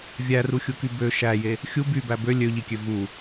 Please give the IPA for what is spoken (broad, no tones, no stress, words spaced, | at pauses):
vʲæruxʲuky bø ʃæje | xʲu bybæ bø lʲøʎikʲø vu